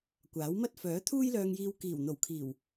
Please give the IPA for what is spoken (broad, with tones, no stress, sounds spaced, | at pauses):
kʷ aː˨˥ w m ɐ˥ t̚ f œː˨˥ t̪ʰ uː˥ j l œː˧ ŋ j iː˧ w k iː˨˩ w n̪ o˨˩ w kʰ iː˨˩ w